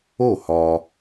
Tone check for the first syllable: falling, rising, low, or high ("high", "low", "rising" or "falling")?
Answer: falling